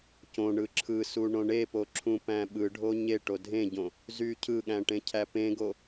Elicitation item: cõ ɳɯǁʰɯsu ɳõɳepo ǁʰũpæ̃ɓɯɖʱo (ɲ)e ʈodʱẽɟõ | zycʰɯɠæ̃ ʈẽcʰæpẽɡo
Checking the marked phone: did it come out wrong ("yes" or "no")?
no